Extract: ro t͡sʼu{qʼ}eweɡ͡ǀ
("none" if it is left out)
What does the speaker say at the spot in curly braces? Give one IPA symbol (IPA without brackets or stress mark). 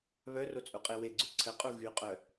qʼ